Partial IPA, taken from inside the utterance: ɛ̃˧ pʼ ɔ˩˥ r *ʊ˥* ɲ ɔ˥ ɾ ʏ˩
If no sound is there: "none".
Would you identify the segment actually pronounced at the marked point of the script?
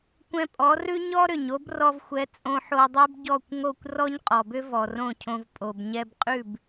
ʉ˥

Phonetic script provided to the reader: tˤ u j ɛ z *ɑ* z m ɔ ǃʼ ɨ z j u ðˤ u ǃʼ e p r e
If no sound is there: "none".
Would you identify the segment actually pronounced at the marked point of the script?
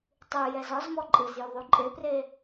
ɒ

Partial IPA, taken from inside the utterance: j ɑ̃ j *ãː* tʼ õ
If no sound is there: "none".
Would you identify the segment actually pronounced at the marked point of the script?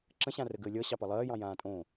ãː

